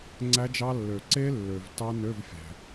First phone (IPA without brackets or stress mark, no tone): ŋ͡ǀ